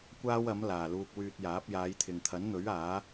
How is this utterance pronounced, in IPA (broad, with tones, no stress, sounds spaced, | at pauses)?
kʷ aː˥ w ɐ˨˥ m l aː˨˩ l uː˧ k̚ w yː˧ t̚ j aː˨˥ p̚ j aː˨˧ j t̪ʰ ɪ˨ ŋ t̪ʰ ɐ˨˥ n n̪ ɵ˨˥ ɥ aː˨˥